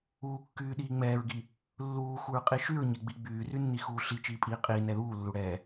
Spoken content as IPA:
uːkːyː ɗiːŋ͡mɛːɹɡi | lːuːxuɹqʼi ʃyɹɲɛɡ͡bi ɡ͡byːrynːixuː ɬi t͡ʃiːpʼiːqʼiː nɛðuːlːuɽɛː

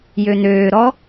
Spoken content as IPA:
jøn̪øːɾɔ

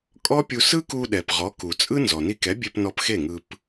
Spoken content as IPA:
kʼɔ˥pʲu˧ sɯ˥ku˧ɗɛ˩p ʁɔ˩˥ku˩t͡sʼɯ˥ nzɔ˩ni˧kɛ˩˥bʲe˧p nɔ˧pxe˥˩ŋɯ˧p

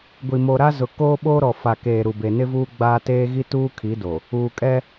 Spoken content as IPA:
ɡʷi˨mo˨ɾa˦ zʊ˨ koː˦ɓoː˦ɾɔ˨fa˨ keː˨ɾu˨be˨ nɪ˦vuː˦ɡ͡baː˦ teː˦ɣi˦tuː˦kʰi˨˦ do˨ | uː˨kʼɛ˦

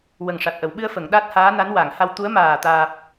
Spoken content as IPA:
wə˨˩ŋʂa˨˩t̚ʔə˨˩˨w ɓɨ˧ə̯fə˨˩˨ŋ ɗa˦˥t̚haː˧˥na˧˥n wa˨˩˨ŋ ha˧wt̪u˧˥ə̯ maː˨˩t̪aː˨˩p̚

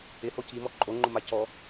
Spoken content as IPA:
ɪhoc imɔ ǃʼoŋ͡ǃʊma cɔ

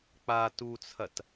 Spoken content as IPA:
k͡pa tut͡sʰɐt

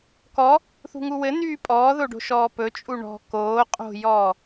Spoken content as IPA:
kɔ | θṳŋuwɘ n̪yːpʼɔːðoɖo̤ ʃɔːpɵt͡ʃʼu ɳɔ̤ koː qʼo̤jɔː

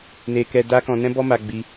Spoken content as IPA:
ne˧kɛ˧ da˦kɔ̃˧ nɛ̃˦bɔ˦ma˧ɡ͡bi˧

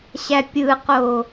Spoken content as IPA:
ɕæpʲɯqo

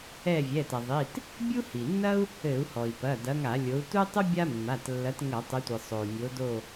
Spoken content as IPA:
ɛ˦˨vʲɛ˩˧˩tɐ˩ðˤi˩˧˩t | bʲu˥hi˩nːɐ˥u̯ | ɘ˧˩˧u̯hɔ˩i̯pɐ˩˧˩ dɐ˨˦ŋa˧˩˧lʲo˨˦u̯ tu˥tˤu˥ bʲa˥mːa˩˧˩tlːɐ˨˦t ŋɐ˧˩˧tˤɘ˨˦tʷi˩ sˤo˩u̯ nʲo˨˦do˦˨

